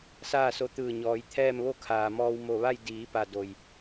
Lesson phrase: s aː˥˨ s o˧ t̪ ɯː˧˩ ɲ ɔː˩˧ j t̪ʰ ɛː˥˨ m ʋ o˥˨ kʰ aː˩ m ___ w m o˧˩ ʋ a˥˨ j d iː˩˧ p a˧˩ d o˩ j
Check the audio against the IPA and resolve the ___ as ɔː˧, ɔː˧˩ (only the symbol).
ɔː˧